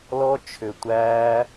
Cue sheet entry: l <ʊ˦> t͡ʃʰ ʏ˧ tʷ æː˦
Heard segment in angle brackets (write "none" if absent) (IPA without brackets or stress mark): ɔ˦